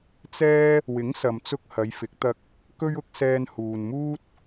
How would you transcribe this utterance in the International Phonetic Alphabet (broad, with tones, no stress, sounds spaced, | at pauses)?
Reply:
t͡s ɛː˥ | w ɪ˨˥ ŋ s ɐ˨ m t͡s ʊ˧ k̚ h ɐ˨˧ j f ɪ˨˥ k̚ t̪ ɐ˧ k̚ | k ɵ˥ ɥ ʊ˨˥ k̚ s ɛː˧ n h uː˨ n m uː˥ t̚